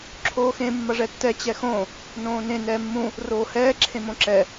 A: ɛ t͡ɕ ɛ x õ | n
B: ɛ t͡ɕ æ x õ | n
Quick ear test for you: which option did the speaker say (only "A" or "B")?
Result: A